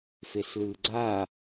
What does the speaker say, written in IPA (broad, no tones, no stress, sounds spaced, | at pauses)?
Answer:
f e s l ɯː ɡ͡ǀ a